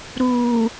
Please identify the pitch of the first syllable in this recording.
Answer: low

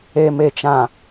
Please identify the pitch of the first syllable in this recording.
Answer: low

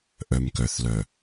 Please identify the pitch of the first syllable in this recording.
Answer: low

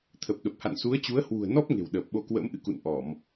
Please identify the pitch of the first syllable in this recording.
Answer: low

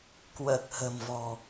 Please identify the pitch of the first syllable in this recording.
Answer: low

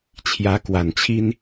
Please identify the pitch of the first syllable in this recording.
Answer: rising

